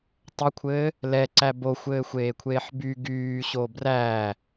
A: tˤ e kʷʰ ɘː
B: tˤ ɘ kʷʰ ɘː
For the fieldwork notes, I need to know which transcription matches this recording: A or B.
B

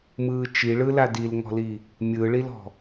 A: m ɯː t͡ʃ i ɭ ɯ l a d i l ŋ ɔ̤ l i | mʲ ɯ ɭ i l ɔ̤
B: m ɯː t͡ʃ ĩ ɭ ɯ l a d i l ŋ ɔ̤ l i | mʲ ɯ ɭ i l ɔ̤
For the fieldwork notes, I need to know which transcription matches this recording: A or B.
A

